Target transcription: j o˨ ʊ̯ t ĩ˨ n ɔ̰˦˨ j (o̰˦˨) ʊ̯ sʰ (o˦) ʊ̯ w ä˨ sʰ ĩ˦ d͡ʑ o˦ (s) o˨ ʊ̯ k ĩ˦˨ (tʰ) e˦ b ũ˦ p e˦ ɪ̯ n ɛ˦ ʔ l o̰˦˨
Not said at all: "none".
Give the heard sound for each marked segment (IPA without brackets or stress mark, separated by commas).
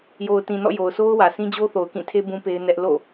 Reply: o˨, o˦, θ, tʰ